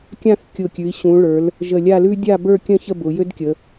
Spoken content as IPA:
kʲ ã˥˧ θ kʲ ʊ˧˩ kʲ ʉ˩˧ i̯ ɕ ũ˩˧ ɭ ə˞˩˧ l | ʒ ə˧˩ lʲ a˥˧ l ʉ˥ dʲ a˥˧ b ə˞˥˧ kʲ ə̃˥˧ ç ə˥˧ b ʊ˩˧ j ø˥ d kʲ ə˩˧

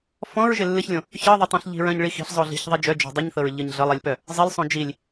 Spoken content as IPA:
f ɔ̃ ɹ ʒ ɪ lː ɨ ç lʲ õ | ç ɤ ðˤ ɪ tˤ õ ɬ ʎ i̤ ɹ œ̃ ɲ ɭ i x i̤ ɬ zˤ o ɮ i̤ ç ðˤ i d͡ʒ œ d͡ʒ o̤ dˤ ɨ ɲ θ ɤ ɹ ʎ ɤ ɲ ɮ ɤ lˠ i lʲ p œ | zˤ ɪ lˠ sˤ õ d͡ʒ i lʲ

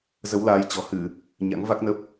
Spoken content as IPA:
z ə˨˦ w l aː˨˦ j t͡ɕ ɔ̤˨˩ h ɨ˧˩˨ | ɲ a̰˧˥ ŋ v a˦˥ k̚ n ə˦˥ p̚

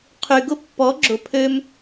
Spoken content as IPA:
qʰ y˨ ɡ ʊ˦ pː ɔ˨˦ ɡ͡ǁ ʊ˨ pʰ ø˧ m

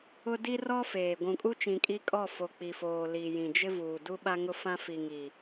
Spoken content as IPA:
ʊ˦ d i˦ r ɔ˦ f eː˨ ɡʷ ũ˨ kʼ u˦ t͡ʃ ĩ˨ kʼ i˦ kʼ ɔ˦˨ f o˨ k͡p i˨ f oː˨ l i˨ j ĩ˨ d͡ʒ ɪ˦ v uː˨ d u˦ ɓ a˦ ŋ ʊ˦ f ã˦ f i˨ ŋ iː˨

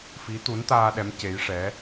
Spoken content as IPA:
f i˧˥ t̪ u˧˥ n t̪ aː˧ ɗ ɛ˧˥ m c e˧˥ j ʂ ɛ˧˥

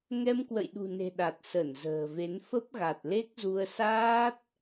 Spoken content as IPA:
ŋ ɛ˧ m k w ə̰˧˨ j ɗ ṳ˨˩ n e̤˨˩ ɗ a˨˩ t̚ s ə˧˩ n z ə̤ː˨˩ v e˨˦ n f ə˦˥ p̚ ɣ a˨˩ t̚ l e˦˥ k̚ z u˧ ə̯ s aː˦˥ t̚

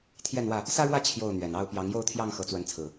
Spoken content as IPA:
t̪ʰ j ɛ˥˨ n w ä˥˨ | s ä˦ ɻ w ä˥˨ t͡ɕʰ j o˥˨ ʊ̯ n̪ ɥ ɛ˨˩ n ɑ˥˨ ʊ̯ p j ɑ˨˦ ŋ j o˥˨ ʊ̯ t̪ʰ j ɑ˥˨ ŋ x ɤ˨˦ t͡s w ə˨˦ n t͡sʰ ɹ̩˨˩

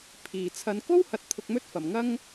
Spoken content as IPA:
pʰ iː˨˩ t͡sʰ ɐ˨˧ n k o˥ w h ɐ˨˥ t̚ t̪ʰ ʊ˧ k̚ m ɵ˥ t̚ f ɐ˨˩ m ŋ ɐ˥ ŋ

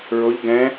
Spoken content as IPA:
ɹ o ʎ ɡ ɛ̃

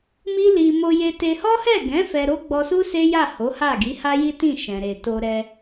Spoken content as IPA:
m i˦ l i˧ m o˧ j e˧ t e˧ h ɔ˦ h ɛ˦˨ ɡ ɛ̃˨˦ f ɛ˧ ɾ o˦ ɡ͡b ɔ˧ s u˦ s e˦ j a˦˨ h o˨˦ h a˦˨ ɡ i˨˦ h a˦ j i˦ t ĩ˦˨ ʃ ɛ̃˨ ɾ e˨ t o˧ ɾ ɛ˧

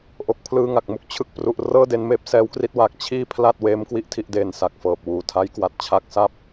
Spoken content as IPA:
ʔ o˨˩ k̚ pʰ l ɯː˧ ŋ a˨˩ k̚ m u˥˩ k̚ t͡ɕʰ ɯ˨˩ k̚ p r u˨˩ ʔ r ɤː˥˩ d e˧ n m eː˦˥ p̚ s ɛː˦˥ w k r i˦˥ t̚ w aː˨˩ k̚ t͡ɕʰ iː˥˩ pʰ l a˥˩ t̚ w eː˦˥ m k w i˥˩ ʔ tʰ i˥˩ ʔ d eː˧ n s a˨˩ k̚ f ɤː˨˩ p̚ w uː˨˩ tʰ a˦˥ j k w a˨˩ t̚ t͡ɕʰ a˦˥ k̚ s a˥˩ p̚

